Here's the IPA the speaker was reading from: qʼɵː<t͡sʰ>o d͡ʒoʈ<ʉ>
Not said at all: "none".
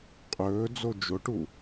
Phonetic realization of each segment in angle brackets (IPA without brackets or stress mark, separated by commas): d͡z, u